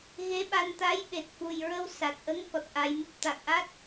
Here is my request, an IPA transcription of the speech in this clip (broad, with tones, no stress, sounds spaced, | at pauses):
ɣ e˧˥ ɓ a˧ n t̪ a˧˥ j ɓ e˨˩ t̚ f u˨˩ j ɹ ə˧ w s a˨˩ t̚ ʔ ə˧˥ ŋ k ɔ˨˩ t̚ ʔ a˧ j m ɨ˦˥ p̚ t̪ a˨˩ k̚ ʔ a˦˥ t̚